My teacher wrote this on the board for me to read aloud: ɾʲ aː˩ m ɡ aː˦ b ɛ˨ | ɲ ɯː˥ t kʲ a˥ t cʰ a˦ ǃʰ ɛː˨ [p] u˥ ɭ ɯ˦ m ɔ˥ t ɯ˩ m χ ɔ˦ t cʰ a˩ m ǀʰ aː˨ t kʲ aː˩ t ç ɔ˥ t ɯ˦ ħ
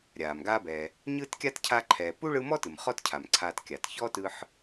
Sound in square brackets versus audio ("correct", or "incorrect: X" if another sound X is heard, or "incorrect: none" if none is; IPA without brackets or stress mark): correct